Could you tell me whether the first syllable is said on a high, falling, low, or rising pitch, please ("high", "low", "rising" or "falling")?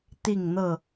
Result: falling